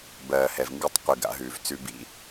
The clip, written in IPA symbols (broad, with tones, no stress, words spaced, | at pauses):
bɜː˨hɛ˨v ŋɡʉ˦tˤqʷi˨ɡa̰˦ɦʉː˨v t͡sʉ˦bḭ˦